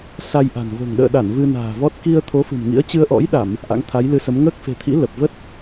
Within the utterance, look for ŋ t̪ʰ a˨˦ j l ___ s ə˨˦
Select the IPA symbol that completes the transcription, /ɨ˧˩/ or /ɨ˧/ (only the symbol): ɨ˧